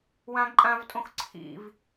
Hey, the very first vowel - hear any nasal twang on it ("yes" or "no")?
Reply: yes